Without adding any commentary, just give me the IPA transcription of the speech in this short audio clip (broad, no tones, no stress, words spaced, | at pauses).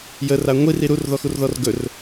jər aŋʷir iɾur ðɔxurðɔrɡɵr